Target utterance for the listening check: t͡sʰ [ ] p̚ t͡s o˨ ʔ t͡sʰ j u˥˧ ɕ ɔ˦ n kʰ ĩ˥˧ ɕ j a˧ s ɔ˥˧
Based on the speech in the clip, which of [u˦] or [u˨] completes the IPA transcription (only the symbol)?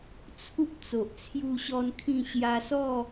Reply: u˦